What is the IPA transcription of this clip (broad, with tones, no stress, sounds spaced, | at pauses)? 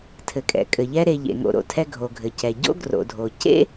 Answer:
tʰ ɘ˩ kʼ ɛ̰˩ kʼ ɘ˩ ʎ ɛ˧ ɾ e˩ ʎ ḛ˩ ŋ o̰˩ ɾ o̰˧ tʰ ɛ˧ ɡʱ o˩ ɡʱ ɘ˩ c ɛ˩ ɟ o̰˥ ɡ r o̰˩ dʱ o˩ c ḛ˥